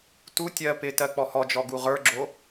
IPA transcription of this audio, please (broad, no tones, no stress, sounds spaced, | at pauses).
t u tʲ ɜ p ɪ t ɜ k͡p ɔ h ɔ d͡ʒ ɔ ɡ u ʁ ə˞ ɡ͡ǁ o